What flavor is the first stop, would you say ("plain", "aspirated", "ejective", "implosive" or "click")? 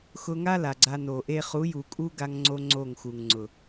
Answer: click